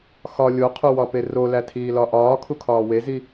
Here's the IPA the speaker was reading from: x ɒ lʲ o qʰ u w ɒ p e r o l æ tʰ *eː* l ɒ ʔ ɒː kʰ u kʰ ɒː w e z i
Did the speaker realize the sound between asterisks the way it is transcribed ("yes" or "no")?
no